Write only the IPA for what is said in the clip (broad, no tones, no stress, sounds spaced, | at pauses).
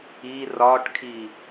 i r ɒ ʈ kʰ i